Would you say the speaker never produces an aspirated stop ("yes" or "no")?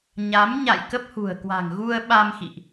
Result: yes